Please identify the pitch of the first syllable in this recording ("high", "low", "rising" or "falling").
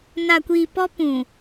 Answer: low